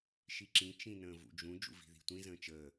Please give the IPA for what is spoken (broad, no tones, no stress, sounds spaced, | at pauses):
ʃ i ǁ ĩ t͡ʃ ĩ n ə̃ː v ṵ d͡ʒ ũ d͡ʒ ṵ v i̤ ð i̤ tʷ ĩ z ə̃ː t͡ʃ əː